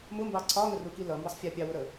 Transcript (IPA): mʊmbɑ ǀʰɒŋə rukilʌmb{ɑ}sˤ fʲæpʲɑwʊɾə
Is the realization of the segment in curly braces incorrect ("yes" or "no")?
yes